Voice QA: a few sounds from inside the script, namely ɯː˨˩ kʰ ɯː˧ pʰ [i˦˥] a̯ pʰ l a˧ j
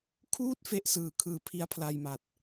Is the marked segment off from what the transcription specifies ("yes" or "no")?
no